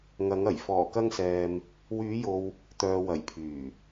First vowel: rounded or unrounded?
unrounded